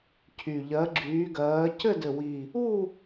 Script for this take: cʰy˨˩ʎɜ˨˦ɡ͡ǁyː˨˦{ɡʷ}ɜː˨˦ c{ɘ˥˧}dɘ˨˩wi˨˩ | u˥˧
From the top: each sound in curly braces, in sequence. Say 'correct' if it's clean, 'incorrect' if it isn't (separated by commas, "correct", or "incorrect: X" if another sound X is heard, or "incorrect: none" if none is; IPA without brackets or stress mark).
incorrect: ɡ, correct